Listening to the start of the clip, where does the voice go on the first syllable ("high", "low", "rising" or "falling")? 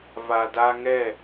low